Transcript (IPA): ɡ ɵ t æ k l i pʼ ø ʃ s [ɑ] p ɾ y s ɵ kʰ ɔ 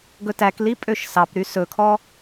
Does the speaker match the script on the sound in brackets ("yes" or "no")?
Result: yes